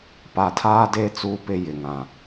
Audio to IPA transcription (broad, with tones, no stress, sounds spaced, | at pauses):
p a˨ tʰ aː˦ d e˦ t͡s uː˦ p ɪ˦ j ɪ˨ ŋ ã˨